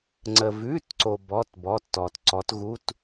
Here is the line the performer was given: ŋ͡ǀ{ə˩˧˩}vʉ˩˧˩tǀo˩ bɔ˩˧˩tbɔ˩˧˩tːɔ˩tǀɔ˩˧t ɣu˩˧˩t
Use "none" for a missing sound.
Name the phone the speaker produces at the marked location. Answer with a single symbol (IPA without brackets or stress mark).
ə˩